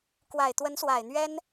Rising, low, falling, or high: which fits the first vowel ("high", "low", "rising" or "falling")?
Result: low